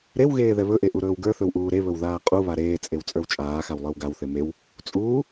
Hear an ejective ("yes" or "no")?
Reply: yes